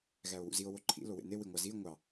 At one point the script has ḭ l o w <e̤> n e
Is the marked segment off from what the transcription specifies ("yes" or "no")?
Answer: yes